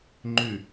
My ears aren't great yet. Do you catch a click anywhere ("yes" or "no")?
yes